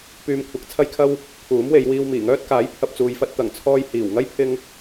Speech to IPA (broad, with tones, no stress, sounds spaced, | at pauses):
p yː˧ m kʷʰ ɐ˨˥ k̚ t͡sʰ ɐ˥ j kʰ ɐ˥ w | pʰ uː˨˥ m w e˨˧ j w iː˧ w m iː˨˩ ŋ œː˥ t̚ k aː˨˥ j pʰ ɐ˨ p̚ t͡s uː˨ j f ɐ˧ t̚ t̪ ɐ˨˩ ŋ t͡sʰ ɔː˧ j h iː˨˩ w ŋ ɐ˥ j pʰ ɪ˧ ŋ